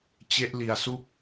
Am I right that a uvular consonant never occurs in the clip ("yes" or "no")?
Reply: yes